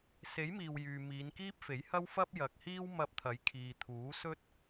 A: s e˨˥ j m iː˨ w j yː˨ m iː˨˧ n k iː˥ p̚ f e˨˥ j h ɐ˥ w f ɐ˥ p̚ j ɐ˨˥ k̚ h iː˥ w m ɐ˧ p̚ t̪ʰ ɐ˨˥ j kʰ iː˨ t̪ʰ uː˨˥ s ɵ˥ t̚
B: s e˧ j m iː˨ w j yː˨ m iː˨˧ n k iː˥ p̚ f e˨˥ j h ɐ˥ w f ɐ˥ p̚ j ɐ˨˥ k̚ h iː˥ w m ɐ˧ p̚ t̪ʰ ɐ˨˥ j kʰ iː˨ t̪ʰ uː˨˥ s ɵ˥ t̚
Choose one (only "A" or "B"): A